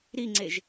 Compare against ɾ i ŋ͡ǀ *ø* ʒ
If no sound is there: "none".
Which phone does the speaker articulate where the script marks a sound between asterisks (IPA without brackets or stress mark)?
e